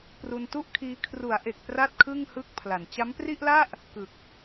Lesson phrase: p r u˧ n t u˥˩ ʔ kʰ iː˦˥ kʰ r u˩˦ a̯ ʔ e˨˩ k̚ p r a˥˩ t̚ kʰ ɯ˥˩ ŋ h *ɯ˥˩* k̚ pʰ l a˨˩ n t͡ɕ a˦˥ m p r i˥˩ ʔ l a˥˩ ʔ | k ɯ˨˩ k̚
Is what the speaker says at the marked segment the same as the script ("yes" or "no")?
yes